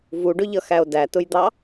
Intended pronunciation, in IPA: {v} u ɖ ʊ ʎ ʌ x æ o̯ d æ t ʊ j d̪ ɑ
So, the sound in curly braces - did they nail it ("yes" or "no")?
yes